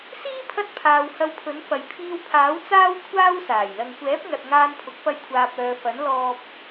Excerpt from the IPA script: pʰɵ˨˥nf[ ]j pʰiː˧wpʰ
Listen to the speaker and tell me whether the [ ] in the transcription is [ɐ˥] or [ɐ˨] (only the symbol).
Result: ɐ˨